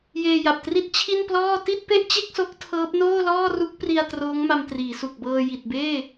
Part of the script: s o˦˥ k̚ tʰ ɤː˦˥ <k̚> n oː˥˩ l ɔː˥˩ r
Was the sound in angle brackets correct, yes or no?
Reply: no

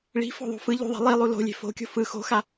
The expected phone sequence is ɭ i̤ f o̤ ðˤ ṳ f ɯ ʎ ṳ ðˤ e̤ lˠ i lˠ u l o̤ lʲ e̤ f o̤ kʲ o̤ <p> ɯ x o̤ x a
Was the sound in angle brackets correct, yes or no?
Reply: no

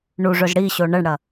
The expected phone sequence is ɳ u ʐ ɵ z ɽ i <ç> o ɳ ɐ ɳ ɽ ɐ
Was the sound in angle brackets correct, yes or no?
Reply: no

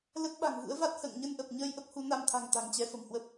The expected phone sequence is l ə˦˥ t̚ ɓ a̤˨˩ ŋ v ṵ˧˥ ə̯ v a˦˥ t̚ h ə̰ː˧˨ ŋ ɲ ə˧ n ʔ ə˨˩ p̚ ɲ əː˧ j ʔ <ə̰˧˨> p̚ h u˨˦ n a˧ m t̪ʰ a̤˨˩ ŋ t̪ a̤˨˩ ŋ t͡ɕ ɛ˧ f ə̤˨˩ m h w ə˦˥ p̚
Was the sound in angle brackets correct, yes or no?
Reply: no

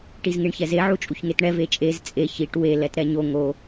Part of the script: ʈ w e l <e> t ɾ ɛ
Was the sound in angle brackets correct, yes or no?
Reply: no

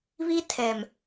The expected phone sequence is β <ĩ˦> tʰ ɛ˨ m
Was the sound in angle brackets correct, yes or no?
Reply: no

